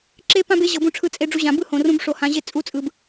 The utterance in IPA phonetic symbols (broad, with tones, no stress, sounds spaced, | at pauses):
ǁ e˦ p ã˦ b e˨˦ ʑ ɤ˨ b ũ˧ ʈ͡ʂʰ ɯ˧ t͡sʼ e˧ ɖ͡ʐ u˧ ʑ ã˨ b ɯ˦˨ h õ˨ r ũ˧ b ʂ o˨ h ã˧ ʑ e˦ t͡sʼ u˦ t͡sʼ ɯ˨˦ b